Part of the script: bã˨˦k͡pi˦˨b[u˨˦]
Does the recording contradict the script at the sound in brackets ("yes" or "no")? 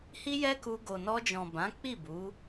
no